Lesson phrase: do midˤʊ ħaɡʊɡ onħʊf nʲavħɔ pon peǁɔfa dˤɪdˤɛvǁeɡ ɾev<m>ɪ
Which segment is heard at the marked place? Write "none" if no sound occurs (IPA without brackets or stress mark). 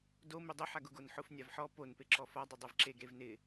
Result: n